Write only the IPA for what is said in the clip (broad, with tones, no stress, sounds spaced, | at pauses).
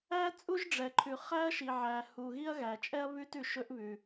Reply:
æ˥ t͡sʼ u˥ ʒ ɖ͡ʐ ɛ˩ ǃʰ ʉ˩ χ æ˥ ɐ̯ ʃ i˩ ʕ æ˩ h u˩ ɣ i˥ ɐ̯ ɣ æ˩ t͡ʃʼ ɛ˥ ɐ̯ β ʉ˥ t ʉ˩ ʃ ɵ˥ ʔ β ʉ˩